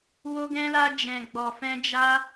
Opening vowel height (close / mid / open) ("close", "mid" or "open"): mid